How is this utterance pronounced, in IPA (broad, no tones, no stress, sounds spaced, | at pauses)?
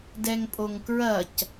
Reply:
d ɛ ŋ pʼ o ŋ k ɹ ɐ c